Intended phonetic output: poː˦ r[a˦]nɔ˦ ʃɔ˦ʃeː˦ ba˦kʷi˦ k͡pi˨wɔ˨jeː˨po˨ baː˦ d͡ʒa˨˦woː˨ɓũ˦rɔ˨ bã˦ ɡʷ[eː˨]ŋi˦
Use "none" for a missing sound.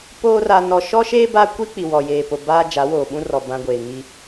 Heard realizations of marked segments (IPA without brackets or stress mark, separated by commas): a˦, eː˨